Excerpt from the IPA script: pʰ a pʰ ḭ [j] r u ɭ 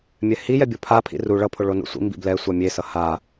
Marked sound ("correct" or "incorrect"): incorrect